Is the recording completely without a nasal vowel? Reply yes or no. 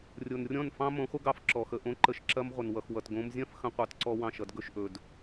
no